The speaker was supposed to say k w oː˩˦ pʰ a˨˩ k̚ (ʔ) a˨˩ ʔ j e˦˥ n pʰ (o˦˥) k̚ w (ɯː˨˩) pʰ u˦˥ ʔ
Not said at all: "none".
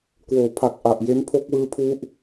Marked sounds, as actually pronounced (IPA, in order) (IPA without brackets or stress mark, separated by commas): ʔ, o˦˥, ɯː˦˥